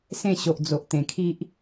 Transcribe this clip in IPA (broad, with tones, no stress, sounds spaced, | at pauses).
s ẽ˥˧ ɕ o˨ ʔ d͡z o˨ ʔ t̪ ẽ˨˩ kʰ i˦ ʔ